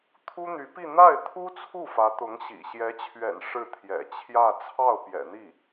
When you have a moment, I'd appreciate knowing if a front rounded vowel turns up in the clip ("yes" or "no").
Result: yes